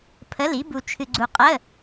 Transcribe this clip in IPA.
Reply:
pʰ ə˧˥˧ l i˧˥ b u˧ t͡ʃʰ ɨ˧ ɡ͡ǀ u˧ qʼ ə˧˥˧

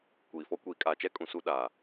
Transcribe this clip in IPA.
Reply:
kʷ iː˨ f ɔ˦ kʷ iː˨ kʼ aː˨ t͡ʃ ɛ˦ kʼ ũ˨ s u˦ ɗ aː˨

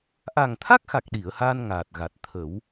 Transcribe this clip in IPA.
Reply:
ʔ a˨˩ ŋ t̪ʰ a˦˥ k̚ x a˨˩ k̚ ɗ i˨˩˨ ə̯ h aː˧ n ŋ aː˨˩ t̚ ɣ a˨˩ t̚ t̪ʰ ə˨˩˦ w

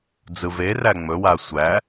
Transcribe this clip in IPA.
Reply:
d͡z ɯ v e r æ ŋ͡m ɵ w a sʷ æ

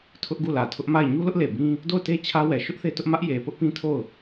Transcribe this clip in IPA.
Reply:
tʰ ʊ˦ ʔ ɡ u˦˨ l ä˨ tʰ ʊ˦ ʔ m a˦˨ ɪ̯ ɲ u˦ l ʊ˦ ʔ l e˨ b ĩ˦ | d o˦˨ ʊ̯ t e˦ t͡ɕʰ ä˦ w ɛ˨ ʃ ʊ˦ ʔ θ e˦ t ʊ˦ ʔ m ä˦ ʔ j e˨ p ʊ˦ ʔ p ĩ˦ tʰ o˦˨ ʊ̯

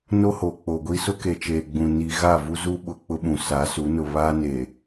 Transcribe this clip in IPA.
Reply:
n o˦ h o˨ k͡p o˨ ɡʷ i˦ s ʊ˦ k e˨ t͡ʃ eː˨ ɡ͡b ũ˨ n i˦ ɣ a˦˨ v u˦ z u˦ ɓ ʊ˨ k͡p ʊ˦ ɓ ũ˨ s a˨˦ s u˨˦ n ʊ˨ β aː˦ n e˨

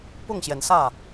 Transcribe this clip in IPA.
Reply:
p ʊ˥˩ ŋ ɕ j ɛ˩ n s ä˥˩

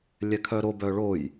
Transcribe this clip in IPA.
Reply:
lʲ ɛ kʰ œ ɾ o b œ ɭ o j

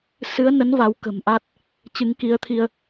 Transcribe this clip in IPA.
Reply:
s ɨ˨˦ ə̯ n ə˨˦ n v a˨˦ w k ə̤˨˩ m ʔ a˦˥ t̚ | t͡ɕ ɨ˨˦ ŋ k i˨˦ ə̯ t̪ʰ i˧ ə̯

